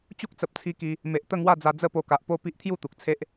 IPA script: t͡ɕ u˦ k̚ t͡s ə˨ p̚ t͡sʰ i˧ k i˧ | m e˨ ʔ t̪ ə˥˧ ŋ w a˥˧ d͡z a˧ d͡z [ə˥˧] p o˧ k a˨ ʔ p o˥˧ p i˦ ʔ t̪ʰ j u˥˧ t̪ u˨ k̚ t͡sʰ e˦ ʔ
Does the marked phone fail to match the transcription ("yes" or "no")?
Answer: no